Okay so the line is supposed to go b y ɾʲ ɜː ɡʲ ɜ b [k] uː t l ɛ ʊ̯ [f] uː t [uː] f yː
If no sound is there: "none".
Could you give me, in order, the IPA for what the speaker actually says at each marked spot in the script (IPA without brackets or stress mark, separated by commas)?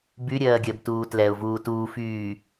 t, v, uː